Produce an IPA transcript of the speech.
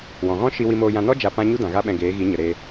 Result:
w ɔ̃˨ ɣ ɔ̃˦ ʃ i˧ w i˧ m oː˧ j ã˧ n ɔ˦ d͡ʒ a˧ p ã˦ ɲ u˦ d ã˨ ɣ a˦ ɓ ɛ̃˧ ɡ eː˨˦ ɣ i˨˦ ɲ ə˨ ɾ eː˧

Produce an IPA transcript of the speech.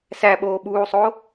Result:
s æ ɓ oː ɓ uː sˤ o

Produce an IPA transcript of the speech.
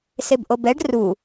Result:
s e b ʔ o b ɛ ɖ r u

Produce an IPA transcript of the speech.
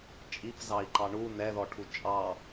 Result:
t͡ʃʼ i p z ɑ i̯ ǃ ɑ ɳ u n ɛ ð ɔ ʈʰ u t͡ʃʼ ɑ

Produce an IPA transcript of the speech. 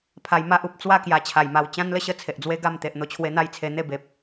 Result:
pʰ a˧ j m a˦ ʔ u˨ p̚ t͡s w a˥˧ k j a˧ t͡ɕʰ a˨˩ j m a˧ w t͡ɕ ã˦ n l ə˥˧ ɕ ə˦ t͡sʰ e˨ ʔ d͡z w e˦ ɡ a˥˧ m t̪ e˨ ʔ n̪ o˧ t͡ɕʰ w e˧ n̪ a˥˧ j t͡sʰ e˧ n̪ e˥˧ b e˨ p̚

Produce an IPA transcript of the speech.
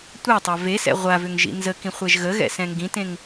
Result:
tʷ ɛ tˤ a v e s ɛ̰ ʁʷ a v ʏ ŋ ʒ ḭ n z ə k ĩ χʷ ɛ ʒ ɣ ə ɣ ɛ̰ s ɛ̃ ŋ ɡ ĩ t ẽ ŋ

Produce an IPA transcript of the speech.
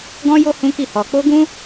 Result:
ɡ ɔ̃˦ j o˦ h ũ˦ k i˦˨ h ɔ˧ k͡p o˦ ɡ ũ˦

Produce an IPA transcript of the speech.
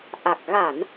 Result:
ʔ a˨˩ k̚ ɣ a˧˩˨ n

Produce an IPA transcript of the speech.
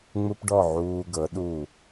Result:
ŋ͡m u˦ p ɖ ɔ˦˨ ʕ uː˧ ɡ ɤ˨˦ ɗ u˦˨

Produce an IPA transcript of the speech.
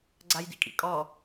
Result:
ɡ͡ǀ a j d ḭ kʼ ḭ kʼ ɔ

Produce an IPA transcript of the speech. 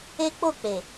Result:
e˦ k͡p o˦˨ k͡p e˨

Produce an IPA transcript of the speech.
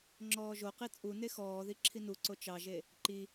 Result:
ŋ͡ǁ ɔː ʒ o q i t͡sʼ u n e x ɔː ð i ǁʰ i n u ǀ o t͡ʃ ɑ ʒ e | ǃ i

